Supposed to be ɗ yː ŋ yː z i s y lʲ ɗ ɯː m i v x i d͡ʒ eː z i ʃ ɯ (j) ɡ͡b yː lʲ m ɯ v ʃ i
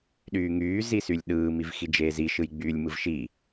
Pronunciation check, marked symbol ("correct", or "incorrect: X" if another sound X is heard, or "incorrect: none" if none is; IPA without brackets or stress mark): correct